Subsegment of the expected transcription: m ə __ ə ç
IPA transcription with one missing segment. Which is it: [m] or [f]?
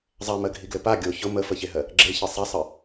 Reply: f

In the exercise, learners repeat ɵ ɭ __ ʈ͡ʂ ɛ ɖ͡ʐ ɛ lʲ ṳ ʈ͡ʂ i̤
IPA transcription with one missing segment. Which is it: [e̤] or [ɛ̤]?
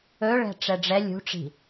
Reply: ɛ̤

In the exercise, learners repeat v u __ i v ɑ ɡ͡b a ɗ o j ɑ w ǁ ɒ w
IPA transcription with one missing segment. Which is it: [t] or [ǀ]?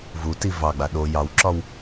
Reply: t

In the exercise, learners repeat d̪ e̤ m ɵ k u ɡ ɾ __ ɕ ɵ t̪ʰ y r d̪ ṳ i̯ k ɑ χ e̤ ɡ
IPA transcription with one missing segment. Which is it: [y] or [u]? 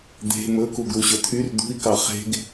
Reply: u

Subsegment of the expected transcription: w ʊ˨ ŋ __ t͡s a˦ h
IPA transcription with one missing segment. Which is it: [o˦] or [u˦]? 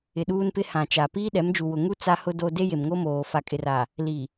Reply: u˦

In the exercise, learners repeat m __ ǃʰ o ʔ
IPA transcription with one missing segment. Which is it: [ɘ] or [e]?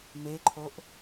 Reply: e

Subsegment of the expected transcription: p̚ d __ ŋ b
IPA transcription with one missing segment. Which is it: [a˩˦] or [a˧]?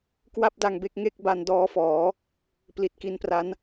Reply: a˧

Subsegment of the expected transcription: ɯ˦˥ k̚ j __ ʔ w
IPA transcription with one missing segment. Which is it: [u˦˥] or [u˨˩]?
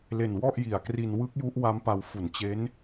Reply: u˦˥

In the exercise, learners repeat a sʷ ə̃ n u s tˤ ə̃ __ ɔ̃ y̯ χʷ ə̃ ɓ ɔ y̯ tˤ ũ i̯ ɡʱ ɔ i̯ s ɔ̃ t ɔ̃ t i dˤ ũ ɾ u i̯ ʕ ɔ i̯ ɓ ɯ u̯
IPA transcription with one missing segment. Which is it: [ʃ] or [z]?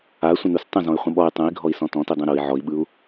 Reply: z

